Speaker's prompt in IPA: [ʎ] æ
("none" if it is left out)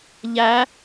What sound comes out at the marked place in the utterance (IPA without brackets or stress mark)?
ʎ